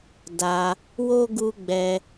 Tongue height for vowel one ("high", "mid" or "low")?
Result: low